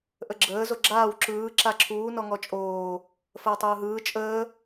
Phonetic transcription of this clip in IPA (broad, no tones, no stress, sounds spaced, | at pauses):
ʔ ə ɡ͡ǁ əː z o ɡ͡ǁ aː w ǁ ɯː ǁ a ǁʰ uː n ɔ ŋ ɔ t͡ʃʼ oː | f əː tˤ ɯː ɦ ɯː t͡ʃʼ əː